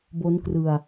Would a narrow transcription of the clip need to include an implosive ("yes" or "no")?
no